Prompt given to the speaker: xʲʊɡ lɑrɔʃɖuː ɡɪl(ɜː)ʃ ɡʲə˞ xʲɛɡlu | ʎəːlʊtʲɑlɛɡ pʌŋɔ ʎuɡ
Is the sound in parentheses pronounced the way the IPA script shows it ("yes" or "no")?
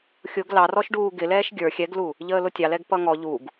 no